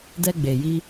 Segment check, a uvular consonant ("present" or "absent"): absent